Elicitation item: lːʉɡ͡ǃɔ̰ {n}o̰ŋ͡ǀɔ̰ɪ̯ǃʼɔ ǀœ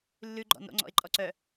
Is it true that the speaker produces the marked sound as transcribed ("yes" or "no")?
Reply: yes